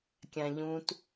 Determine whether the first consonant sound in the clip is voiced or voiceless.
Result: voiceless